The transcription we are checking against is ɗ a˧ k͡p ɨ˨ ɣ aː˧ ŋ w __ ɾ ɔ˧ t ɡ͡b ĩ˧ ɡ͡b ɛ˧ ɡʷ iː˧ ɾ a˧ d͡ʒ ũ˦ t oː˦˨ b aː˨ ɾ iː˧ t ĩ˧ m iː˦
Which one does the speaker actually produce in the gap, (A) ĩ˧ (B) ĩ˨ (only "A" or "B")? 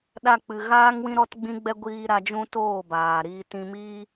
A